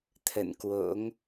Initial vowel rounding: unrounded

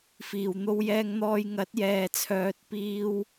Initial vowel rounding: unrounded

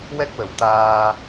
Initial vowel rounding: unrounded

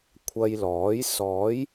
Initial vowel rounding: unrounded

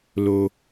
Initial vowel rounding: rounded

